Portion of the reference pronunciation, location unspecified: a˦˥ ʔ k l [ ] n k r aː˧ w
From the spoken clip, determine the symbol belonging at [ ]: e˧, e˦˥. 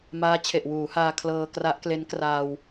e˦˥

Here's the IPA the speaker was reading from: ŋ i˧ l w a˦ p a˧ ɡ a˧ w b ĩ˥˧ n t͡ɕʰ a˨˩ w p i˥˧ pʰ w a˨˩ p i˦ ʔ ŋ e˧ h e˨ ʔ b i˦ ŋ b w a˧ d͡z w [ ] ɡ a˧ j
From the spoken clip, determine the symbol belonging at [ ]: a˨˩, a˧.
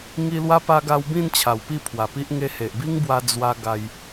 a˧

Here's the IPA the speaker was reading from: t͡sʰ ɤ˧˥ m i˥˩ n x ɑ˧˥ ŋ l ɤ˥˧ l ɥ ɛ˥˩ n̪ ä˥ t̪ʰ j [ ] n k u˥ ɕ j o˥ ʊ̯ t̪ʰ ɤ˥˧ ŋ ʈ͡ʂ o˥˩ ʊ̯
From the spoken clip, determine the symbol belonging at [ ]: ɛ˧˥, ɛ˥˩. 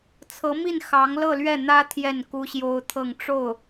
ɛ˥˩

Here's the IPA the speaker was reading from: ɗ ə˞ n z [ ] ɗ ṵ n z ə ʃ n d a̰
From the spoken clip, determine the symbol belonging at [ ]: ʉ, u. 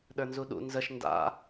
u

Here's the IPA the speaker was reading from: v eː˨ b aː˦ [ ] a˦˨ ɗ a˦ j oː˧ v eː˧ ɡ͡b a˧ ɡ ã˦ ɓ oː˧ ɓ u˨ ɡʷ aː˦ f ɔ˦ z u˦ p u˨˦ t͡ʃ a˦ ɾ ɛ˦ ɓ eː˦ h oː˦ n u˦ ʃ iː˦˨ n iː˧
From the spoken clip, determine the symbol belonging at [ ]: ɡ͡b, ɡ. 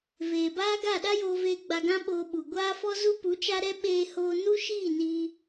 ɡ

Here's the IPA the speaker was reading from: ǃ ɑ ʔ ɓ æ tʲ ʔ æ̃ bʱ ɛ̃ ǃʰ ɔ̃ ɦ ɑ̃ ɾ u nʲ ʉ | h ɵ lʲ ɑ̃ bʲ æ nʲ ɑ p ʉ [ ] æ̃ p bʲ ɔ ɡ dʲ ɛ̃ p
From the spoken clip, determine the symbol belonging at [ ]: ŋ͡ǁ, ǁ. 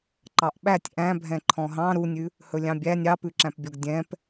ǁ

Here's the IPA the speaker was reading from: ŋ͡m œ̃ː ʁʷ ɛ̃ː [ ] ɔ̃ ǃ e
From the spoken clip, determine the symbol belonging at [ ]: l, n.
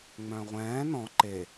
n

